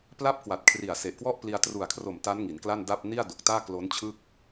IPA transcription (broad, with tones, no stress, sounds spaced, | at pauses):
p l a˦˥ p̚ k w a˨˩ t̚ kʰ r i˨˩ a̯ s e˨˩ ʔ k w ɔ˥˩ ʔ p l i˧ a̯ t r u˨˩ a̯ kʰ r o˨˩ m t a˦˥ n ŋ i˩˦ n k l a˥˩ n d a˥˩ p̚ n i˥˩ a̯ d o˨˩ k̚ t aː˥˩ k l o˦˥ n t͡ɕʰ ɯː˥˩ k̚